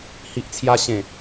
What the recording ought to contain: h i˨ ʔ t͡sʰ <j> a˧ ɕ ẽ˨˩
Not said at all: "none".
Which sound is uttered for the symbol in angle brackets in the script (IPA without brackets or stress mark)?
j